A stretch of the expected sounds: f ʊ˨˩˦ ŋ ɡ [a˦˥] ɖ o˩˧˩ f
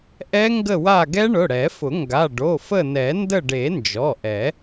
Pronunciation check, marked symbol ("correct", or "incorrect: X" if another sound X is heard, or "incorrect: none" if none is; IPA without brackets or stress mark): incorrect: a˩˧˩